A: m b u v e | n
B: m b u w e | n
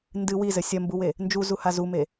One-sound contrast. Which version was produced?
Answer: B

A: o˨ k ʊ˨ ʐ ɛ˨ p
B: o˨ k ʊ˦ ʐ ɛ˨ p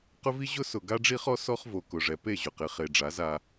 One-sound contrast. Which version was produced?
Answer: A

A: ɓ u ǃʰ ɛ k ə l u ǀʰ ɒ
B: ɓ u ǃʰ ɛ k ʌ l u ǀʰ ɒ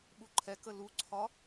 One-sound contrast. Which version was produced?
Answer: A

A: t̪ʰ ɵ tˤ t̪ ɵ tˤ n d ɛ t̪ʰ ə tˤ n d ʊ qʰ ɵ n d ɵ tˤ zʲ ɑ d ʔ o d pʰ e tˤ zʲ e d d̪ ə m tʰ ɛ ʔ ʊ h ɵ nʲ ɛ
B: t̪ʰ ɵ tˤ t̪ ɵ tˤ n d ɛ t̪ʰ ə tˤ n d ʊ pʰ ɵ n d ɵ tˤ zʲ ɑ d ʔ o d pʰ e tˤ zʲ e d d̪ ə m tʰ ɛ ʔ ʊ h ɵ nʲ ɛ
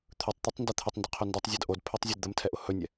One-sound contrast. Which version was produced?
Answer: A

